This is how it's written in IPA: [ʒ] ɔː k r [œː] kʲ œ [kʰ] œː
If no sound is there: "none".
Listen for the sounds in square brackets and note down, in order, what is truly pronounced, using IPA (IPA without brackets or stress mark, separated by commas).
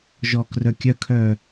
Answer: ʒ, œ, kʰ